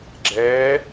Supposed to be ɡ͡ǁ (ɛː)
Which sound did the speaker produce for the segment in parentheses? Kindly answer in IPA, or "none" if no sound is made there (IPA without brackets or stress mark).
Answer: ɛː